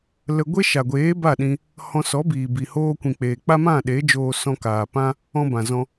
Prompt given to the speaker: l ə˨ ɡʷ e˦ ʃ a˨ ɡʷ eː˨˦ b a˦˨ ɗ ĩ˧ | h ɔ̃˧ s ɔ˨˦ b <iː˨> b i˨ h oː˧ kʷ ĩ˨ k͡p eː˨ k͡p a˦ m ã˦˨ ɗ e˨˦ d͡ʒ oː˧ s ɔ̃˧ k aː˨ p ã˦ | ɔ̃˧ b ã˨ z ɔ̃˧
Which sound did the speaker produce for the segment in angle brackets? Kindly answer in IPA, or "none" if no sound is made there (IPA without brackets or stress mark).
iː˨